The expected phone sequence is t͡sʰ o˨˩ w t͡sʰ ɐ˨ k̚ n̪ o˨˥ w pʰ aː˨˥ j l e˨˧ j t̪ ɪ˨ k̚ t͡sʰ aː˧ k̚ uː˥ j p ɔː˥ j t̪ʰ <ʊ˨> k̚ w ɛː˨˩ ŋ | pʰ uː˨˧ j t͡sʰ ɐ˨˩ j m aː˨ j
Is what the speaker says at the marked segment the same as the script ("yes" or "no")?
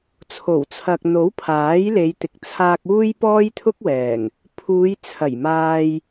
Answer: no